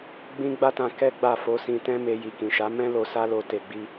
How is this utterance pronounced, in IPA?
ɡ͡b ĩ˦ ɡ͡b a˦ t ã˧ k ɛ˦ ɡ͡b a˦˨ f o˧ s ĩ˧ t ɛ̃˦ m e˧ j i˨ k ĩ˨ ʃ a˨˦ m ɛ̃˦ l o˧ s a˦ l o˧ t e˨ ɡ͡b i˧

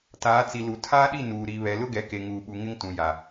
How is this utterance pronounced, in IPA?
t aː˨˦ t͡s i˨ l u˨ tʰ aː˦ ɗ i˦˨ n uː˨ ɾ i˨ β ɛ˨ l ʊ˦ ɡ ɛ˨ k e˨ ŋ uː˨ ɓ u˨ ŋ ɪ˦ ŋ t ũ˨ j a˨

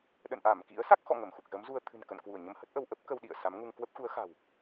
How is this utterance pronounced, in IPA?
ɗ ə̰˧˨ n ʔ a˧˩ m k ḭ˧˥ ə̯ s a˦˥ k̚ x ɔ̰˧˨ ŋ ə˧˩ m x u˨˩ k̚ z ə˨˦ m z u˧ ə̯ t̪ʰ ɨ̤˨˩ n k ə̰˧˨ n k w u˧˩ ə̯ ɲ ə˧ m h ə˦˥ t̚ ʔ ə˧ w ʔ ə˦˥ p̚ k ə˧ w ɗ ḭ˧˨ ə̯ s a˨˦ m ŋ u˧ ŋ k w ə˦˥ p̚ x u˨˦ ə̯ x a̤˨˩ w

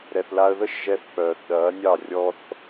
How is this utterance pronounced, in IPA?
ɾ ɛ˨ θ l a˧ ə̯ ð ə˦ ʃ ʒ ɛ˧ θ k͡p œː˨ θ ɗ ɐː˨˦ nʲ ɑ˦˨ rʲ ɔ˦ θ

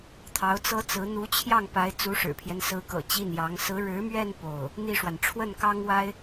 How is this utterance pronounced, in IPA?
t̪ʰ ɑ˧˥ ʊ̯ t͡s ɤ˥ t͡s ɹ̩˧˥ n̪ u˧˥ t͡ɕʰ j ɑ˥˩ ŋ p a˧˥ ɪ̯ t͡s u˧˥ ʂ ɻ̩˨˩ pʰ j ɛ˦ n s ɹ̩˧˥ k ɤ̰˨˩ t͡ɕ i˥˩ n j ɑ˧˥ ŋ s ɹ̩˧˥ ɻ ɻ̩˧˥ m ɥ ɛ˥˧ n p o˥˩ ʊ̯ | n̪ i˥˩ ʂ w a˩ n ʈ͡ʂʰ w ə˥˩ n k ɑ˥ ŋ w a˥ ɪ̯

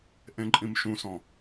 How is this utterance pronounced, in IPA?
ʔ ẽ ǃʼ ĩ m ʃ ũ s ɔ̃

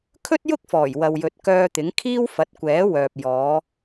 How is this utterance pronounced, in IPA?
kʰ ɵ˥ t̚ j ʊ˥ k̚ f ɔː˨˩ j w ɐ˨ w j ɵ˨ t̚ k œː˧ t̪ ɪ˨˥ ŋ kʰ iː˥ w f ɐ˨˥ t̚ kʷ ɛː˨˥ w œː˨ p̚ j ɔː˨˧

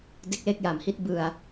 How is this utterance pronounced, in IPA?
d e˥˩ k̚ l e˥˩ k̚ j a˩˦ m h i˥˩ t̚ b ɯ˧ a̯

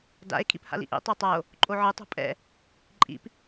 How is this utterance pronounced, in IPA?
d a̰ e̯ kʰ ḭ p h a̰ l ḭ ʔ ḭ tˤ a tˤ a o̯ | ǃʼ o ʕ ɯ tˤ o̤ pʼ ɛ̰ | ǃʼ ḭ p

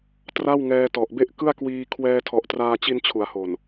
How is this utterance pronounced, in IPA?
t r a˥˩ w ŋ ɛː˧ t ɔ˨˩ ʔ b e˥˩ ʔ k ɯ˥˩ a̯ k w iː˧ kʰ w ɛː˧ tʰ ɔ˨˩ ʔ t r aː˧ t͡ɕ i˧ n t͡ɕʰ u˩˦ a̯ h o˨˩ n

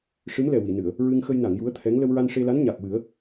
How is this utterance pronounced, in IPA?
ʂ ɨ˧˥ m l ɛ˨˩ w i˨˩˨ n ɨ˨˩˨ ə̯ | ɹ ɨ˧ ŋ x ə˧ j n a˨˩˨ ŋ j u˧˥ ə̯ t̪ʰ ɛ˧˥ ŋ l ə˧ w ɹ a˧ n ʂ e˧ l a˧˥ n ɲ a˨˩ k̚ w ɨ˨˩˦ ə̯

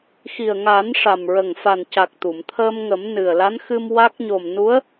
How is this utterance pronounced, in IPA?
x i˨˩ ə̯ ŋ a˨˩˦ n ʂ a˨˩ m ɹ ə˨˩ ŋ f a˨˩ n c a˨˩ k̚ t̪ u˨˩˨ m t̪ʰ əː˧ m ŋ ə˨˩˦ m n ɨ˨˩ ə̯ l a˧˥ n x ɨ˧ m w a˦˥ k̚ ɲ o˨˩ m n u˧˥ ə̯

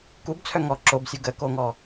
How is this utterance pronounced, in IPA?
k u b t͡sʰ œ ŋ ɔ ǁ o b sʲ u ɡ ə k o ŋ ɔ

